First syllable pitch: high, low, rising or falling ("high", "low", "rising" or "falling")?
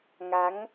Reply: rising